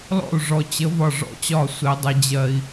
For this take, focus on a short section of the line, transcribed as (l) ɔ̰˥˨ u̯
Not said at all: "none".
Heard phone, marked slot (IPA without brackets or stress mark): l